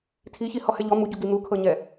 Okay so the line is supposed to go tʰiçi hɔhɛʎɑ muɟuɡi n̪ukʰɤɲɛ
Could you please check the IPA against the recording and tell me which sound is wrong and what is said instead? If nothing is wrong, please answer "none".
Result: ɑ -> ɔ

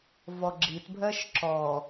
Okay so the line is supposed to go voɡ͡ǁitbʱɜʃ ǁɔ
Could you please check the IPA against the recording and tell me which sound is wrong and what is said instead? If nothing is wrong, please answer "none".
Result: o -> ɔ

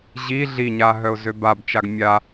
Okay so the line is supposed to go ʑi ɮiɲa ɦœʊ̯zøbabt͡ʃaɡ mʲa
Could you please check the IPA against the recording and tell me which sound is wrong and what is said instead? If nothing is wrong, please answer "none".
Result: none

